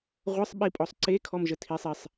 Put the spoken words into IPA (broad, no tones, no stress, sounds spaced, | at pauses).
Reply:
ʁʷ ə sˤ ɓ i pʼ ɔ sˤ ǀ e kʰ ɔ m ʒ ə tʰ i sˤ i sˤ